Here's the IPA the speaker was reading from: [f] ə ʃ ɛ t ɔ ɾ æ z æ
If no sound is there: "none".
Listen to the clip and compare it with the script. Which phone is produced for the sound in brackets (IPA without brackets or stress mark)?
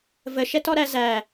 v